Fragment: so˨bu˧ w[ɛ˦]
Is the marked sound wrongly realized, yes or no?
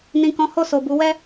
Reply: no